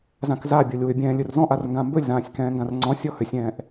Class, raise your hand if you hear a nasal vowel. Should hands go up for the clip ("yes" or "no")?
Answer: yes